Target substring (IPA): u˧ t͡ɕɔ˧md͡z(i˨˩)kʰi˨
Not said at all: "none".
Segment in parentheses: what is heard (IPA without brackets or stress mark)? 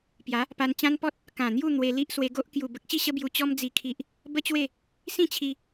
i˨˩